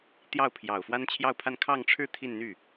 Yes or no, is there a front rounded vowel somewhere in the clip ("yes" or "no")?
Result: yes